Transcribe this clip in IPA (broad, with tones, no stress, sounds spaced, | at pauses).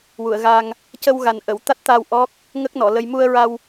w u˨˩˨ ə̯ ɣ a˧ ŋ | c ə˧ w ɣ a˨˩ n ʔ ə˨˩˨ w t̪ a˦˥ t̚ t̪ a˧ w ʔ ɔ˦˥ k̚ | ŋ ə˦˥ k̚ n ɔ˨˩˨ l ə˧ j m u˧ ə̯ ɹ a˧ w